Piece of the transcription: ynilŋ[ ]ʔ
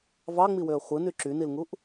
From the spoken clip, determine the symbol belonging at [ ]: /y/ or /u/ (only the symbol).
u